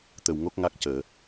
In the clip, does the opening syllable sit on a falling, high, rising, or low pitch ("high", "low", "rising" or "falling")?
low